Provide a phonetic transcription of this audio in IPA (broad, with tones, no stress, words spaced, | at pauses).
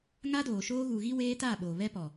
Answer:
ŋa˦doː˨ʃoː˦ ɣu˨ɣi˦weː˦ta˦˨ ɓoː˨βɛ˦pɔ˨